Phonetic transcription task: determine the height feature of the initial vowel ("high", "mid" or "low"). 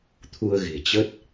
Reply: high